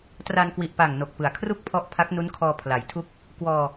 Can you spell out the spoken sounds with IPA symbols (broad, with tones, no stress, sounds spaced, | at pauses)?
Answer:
t r a˧ n k w i˨˩ ʔ p a˨˩ ŋ n o˨˩ k̚ p ɯ˩˦ a̯ kʰ r u˥˩ k̚ pʰ ɔ˦˥ ʔ pʰ a˦˥ k̚ n u˦˥ n kʰ ɔː˧ pʰ l a˩˦ j tʰ u˥˩ k̚ | k w ɔː˧